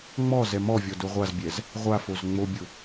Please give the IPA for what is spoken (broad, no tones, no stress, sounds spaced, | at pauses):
ŋ͡m ɔ z ɛ m ɔ vʲ ɔ d ʊ ʁʷ a z bʲ ɛ z | ʁʷ a f o z ŋ͡m o bʲ ʊ